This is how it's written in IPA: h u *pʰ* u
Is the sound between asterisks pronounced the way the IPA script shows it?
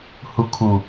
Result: no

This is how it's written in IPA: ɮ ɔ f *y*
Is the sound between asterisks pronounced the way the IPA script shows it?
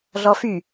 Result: yes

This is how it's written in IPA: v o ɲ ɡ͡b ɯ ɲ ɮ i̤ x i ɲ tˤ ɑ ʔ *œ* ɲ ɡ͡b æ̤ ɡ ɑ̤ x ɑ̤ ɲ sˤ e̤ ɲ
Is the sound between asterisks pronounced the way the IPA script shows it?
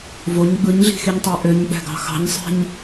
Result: no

